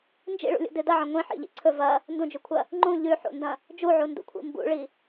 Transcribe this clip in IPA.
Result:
n d͡ʒ ḭ ɭ ṵ lʲ ṵ d ɨ d ɐ ʕ ɐ̃ ŋʷ ĩ ħ ḭ ʎ ḭ ǀʰ ɵ v ɐ | n d ũ d͡ʒ ʉ kʷʰ ɐ | ŋ͡ǃ ũ ʎ ʉ ħ ṵ n d ɐ̃ | d͡ʒ u ʕ u n d ṵ kʷʰ ḭ m b ṵ ɭ i

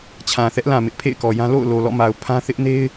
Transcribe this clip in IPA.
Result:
t͡ɕʰ ã˨ θ ɛ˦ ʔ l ã˨ m ɪ˦ ʔ pʰ ḛ˦˨ ɪ̯ k ɔ˨ j ã˦ l o̰˦˨ ʊ̯ l o˨ l ɔ̰˦˨ m a˨ ʊ̯ pʰ ã˦ θ ɪ˦ ʔ n e˦ ɪ̯

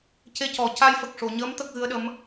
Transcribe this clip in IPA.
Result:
c e˧ c ɔ˨˩ c a˧ j f ə˨˩ k̚ ʂ o˨˩˨ ɲ əː˧˥ m t̪ ə˦˥ k̚ ɣ ɨ˧˥ ə̯ ɗ ə˧˥ m

